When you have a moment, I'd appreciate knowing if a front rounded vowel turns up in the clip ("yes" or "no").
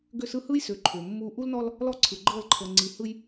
yes